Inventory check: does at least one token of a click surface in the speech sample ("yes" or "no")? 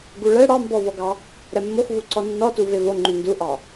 yes